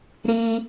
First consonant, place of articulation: alveolar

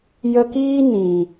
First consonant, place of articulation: palatal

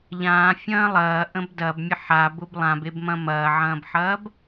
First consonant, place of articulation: palatal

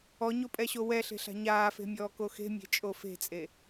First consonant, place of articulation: palatal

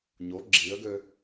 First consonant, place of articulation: palatal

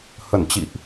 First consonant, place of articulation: glottal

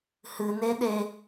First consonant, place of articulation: glottal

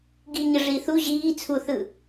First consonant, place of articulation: velar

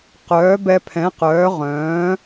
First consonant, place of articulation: uvular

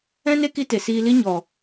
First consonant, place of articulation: alveolar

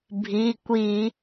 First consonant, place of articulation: labial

